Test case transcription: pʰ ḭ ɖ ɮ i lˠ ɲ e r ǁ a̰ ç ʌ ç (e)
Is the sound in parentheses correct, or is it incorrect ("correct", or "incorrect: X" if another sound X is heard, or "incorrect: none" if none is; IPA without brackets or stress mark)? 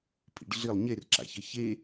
correct